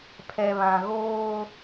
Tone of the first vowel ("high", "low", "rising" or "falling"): low